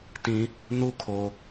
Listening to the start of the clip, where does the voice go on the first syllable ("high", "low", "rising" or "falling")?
low